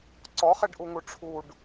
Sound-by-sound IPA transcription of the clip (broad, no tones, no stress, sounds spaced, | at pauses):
ǀ ɔ χ e ɖ ʔ u ŋ u ʈ͡ʂʰ u ɖ